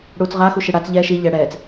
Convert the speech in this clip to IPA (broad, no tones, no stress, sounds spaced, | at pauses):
ɽ uː t͡s ʁ a x u ʃ i ɽ a t͡s ʎ ɛ ʃ i ʎ ɛ ɽ ɛː t͡s